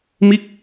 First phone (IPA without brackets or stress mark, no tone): m